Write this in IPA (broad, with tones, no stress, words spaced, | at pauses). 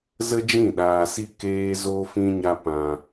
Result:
zə˦d͡ʒĩ˦˨ɗaː˧si˦ keː˦ zo˦fĩ˦ɲa˦ pã˧